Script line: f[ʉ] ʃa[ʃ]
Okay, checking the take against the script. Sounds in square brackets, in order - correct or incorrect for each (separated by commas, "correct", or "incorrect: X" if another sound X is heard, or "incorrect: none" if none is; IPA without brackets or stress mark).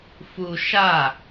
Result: incorrect: u, incorrect: none